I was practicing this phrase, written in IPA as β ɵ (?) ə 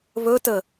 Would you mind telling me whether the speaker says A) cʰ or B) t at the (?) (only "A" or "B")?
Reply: B